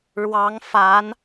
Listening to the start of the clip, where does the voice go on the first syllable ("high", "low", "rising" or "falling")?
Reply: rising